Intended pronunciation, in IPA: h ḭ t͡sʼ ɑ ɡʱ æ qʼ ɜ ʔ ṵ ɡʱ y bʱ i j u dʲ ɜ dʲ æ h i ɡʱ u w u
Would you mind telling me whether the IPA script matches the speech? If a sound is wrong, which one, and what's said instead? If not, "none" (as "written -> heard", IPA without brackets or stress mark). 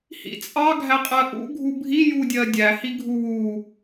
y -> u